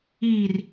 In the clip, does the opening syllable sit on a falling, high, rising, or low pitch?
low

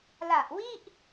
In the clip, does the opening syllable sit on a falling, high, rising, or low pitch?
low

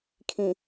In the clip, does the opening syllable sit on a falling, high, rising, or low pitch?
low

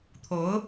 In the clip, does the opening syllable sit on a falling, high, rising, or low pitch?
rising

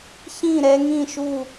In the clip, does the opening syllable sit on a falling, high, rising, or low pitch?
falling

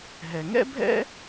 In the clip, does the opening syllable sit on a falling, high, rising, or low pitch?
low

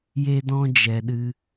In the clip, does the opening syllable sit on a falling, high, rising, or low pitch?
high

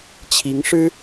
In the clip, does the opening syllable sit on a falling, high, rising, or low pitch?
rising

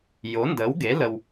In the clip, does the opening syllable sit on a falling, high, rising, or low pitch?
rising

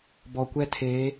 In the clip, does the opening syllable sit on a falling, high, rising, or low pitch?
low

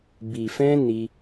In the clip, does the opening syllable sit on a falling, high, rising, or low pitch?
low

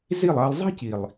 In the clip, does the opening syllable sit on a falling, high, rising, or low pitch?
falling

